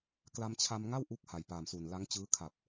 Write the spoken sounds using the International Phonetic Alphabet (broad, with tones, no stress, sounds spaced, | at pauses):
k l a˧ m t͡ɕʰ a˧ m ŋ a˥˩ w ʔ u˦˥ k̚ h a˨˩ j p aː˨˩ m s u˨˩ n l a˦˥ ŋ t͡ɕ ɯː˦˥ kʰ a˨˩ p̚